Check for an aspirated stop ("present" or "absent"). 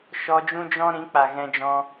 absent